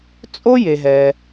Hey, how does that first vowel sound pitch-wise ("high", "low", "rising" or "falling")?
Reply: high